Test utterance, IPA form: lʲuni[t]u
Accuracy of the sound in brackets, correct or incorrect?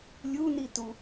correct